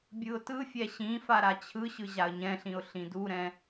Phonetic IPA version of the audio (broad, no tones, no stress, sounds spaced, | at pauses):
bʲ ɯ ʊ̯ t ɯ fʲ ɛ ɕ ĩ f a ɾ a t͡ɕʰ ɯ ɕ ɯ ʑ a ə̯ ɲ ɛ̃ ɬ ĩ ʊ̯ ɬ ĩ d u ɾ ɛ̃